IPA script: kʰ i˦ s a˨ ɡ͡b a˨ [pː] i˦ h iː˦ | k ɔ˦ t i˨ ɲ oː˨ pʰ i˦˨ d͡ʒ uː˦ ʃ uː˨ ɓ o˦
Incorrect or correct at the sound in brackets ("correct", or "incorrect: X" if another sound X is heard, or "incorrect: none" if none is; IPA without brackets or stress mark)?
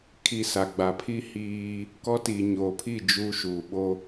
incorrect: pʰ